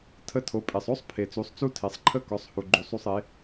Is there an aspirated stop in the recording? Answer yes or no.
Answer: yes